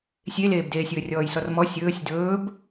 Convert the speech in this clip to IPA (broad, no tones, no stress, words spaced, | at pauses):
sʲeleːbdeː sʲɵːrʲɔːjsɔrmɔ sʲɵːsʲ dɵːb